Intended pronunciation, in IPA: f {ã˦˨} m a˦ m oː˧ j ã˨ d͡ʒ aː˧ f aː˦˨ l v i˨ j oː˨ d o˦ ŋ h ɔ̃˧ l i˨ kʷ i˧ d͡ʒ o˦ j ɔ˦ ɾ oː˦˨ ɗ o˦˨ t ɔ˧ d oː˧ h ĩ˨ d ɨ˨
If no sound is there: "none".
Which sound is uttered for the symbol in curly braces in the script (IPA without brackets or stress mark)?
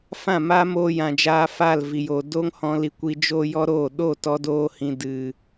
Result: ã˦˨